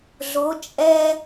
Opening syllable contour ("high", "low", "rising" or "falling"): rising